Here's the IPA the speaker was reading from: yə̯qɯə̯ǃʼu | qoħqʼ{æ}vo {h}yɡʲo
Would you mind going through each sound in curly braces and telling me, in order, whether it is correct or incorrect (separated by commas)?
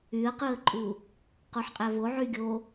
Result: correct, incorrect